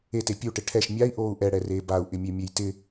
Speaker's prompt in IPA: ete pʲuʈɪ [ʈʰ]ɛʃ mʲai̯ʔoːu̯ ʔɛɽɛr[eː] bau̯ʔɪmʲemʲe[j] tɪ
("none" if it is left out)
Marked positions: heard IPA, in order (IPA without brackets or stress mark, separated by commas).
ʈʰ, eː, j